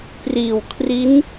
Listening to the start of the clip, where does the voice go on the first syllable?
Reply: low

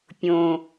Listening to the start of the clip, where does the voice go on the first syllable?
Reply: low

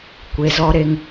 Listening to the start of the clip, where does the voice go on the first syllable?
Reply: low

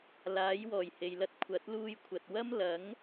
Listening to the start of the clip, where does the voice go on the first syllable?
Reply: rising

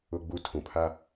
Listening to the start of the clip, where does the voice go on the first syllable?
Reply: low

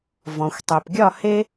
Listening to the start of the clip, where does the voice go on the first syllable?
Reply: low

